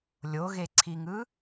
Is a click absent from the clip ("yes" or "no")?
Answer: no